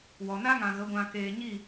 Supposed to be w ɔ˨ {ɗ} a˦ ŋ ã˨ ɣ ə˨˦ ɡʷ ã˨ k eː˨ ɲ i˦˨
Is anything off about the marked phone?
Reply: yes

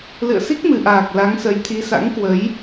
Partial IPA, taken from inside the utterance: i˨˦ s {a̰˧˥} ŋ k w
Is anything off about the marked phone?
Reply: no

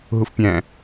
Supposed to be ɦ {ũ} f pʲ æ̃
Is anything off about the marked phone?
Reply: yes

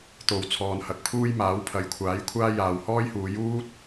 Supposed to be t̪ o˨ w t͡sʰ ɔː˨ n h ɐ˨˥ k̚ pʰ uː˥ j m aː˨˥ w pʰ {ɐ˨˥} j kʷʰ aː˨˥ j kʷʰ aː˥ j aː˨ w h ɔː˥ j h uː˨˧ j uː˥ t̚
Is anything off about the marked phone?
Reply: no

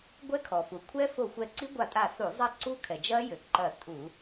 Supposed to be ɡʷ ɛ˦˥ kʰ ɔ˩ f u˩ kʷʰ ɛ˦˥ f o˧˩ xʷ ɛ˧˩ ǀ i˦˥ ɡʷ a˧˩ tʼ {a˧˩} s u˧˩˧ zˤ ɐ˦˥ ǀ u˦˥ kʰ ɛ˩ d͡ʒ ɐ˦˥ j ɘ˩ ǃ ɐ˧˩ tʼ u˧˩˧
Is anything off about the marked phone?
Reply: no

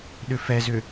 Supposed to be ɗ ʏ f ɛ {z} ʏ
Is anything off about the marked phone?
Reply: no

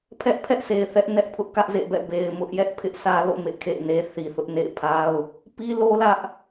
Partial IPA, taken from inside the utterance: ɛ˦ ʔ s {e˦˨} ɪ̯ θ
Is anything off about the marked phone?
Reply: yes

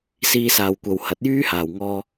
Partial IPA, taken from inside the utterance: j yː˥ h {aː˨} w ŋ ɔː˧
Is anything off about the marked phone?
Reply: no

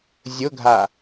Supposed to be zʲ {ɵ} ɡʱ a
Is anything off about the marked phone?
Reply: yes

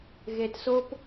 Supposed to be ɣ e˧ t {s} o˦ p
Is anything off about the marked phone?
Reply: no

